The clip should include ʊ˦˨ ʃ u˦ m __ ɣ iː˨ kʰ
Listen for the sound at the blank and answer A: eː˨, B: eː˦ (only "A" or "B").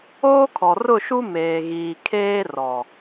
A